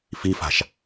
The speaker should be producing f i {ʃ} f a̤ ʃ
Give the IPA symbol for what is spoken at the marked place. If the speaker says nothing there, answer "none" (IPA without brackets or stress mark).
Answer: none